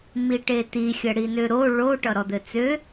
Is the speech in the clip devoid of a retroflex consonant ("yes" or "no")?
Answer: no